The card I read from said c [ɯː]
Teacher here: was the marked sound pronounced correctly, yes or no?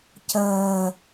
no